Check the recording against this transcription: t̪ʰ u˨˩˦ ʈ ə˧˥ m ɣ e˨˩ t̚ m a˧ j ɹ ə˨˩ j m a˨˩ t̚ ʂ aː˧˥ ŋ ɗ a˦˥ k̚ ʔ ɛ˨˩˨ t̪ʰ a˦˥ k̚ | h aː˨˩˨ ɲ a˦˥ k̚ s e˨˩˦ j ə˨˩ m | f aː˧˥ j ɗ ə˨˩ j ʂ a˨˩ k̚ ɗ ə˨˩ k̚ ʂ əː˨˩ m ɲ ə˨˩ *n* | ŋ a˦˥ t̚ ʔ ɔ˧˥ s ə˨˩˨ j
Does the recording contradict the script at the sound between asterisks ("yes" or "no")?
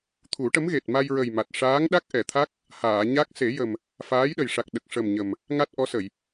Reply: yes